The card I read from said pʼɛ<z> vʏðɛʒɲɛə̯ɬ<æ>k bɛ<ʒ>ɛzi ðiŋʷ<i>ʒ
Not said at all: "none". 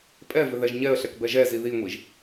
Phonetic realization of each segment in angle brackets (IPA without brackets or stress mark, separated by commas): none, ɛ, ʒ, i